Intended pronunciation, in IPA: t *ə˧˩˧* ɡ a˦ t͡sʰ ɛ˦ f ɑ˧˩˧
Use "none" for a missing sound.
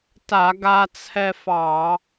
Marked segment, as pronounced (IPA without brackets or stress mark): a˧˩˧